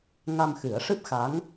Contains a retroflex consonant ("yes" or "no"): yes